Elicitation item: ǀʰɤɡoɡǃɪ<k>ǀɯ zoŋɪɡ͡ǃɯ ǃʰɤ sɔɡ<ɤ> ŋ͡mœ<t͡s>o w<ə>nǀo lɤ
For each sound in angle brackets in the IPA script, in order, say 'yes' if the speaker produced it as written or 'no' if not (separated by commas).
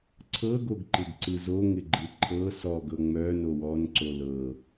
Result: no, yes, no, no